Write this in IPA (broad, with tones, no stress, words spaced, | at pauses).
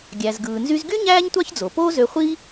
ɡʲæ˩zɡɯː˩nzy˧zɡy˥ ɲæː˥ɲtʷɑ˥çd͡zo˩ poː˥zø˧χʷi˥